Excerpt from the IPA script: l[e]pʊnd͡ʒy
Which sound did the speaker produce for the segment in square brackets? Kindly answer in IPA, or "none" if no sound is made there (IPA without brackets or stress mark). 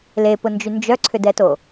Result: e